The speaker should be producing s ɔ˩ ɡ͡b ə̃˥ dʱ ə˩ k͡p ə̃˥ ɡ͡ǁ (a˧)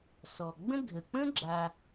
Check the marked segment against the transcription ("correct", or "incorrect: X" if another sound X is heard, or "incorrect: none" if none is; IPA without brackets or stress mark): correct